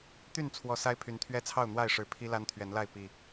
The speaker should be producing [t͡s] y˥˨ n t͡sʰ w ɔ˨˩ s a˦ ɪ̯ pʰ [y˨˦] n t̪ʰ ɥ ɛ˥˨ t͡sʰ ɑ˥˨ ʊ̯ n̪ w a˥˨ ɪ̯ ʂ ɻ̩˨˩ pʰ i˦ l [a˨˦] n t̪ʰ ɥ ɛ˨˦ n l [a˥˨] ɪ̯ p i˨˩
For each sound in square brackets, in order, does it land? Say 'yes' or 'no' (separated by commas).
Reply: no, yes, no, yes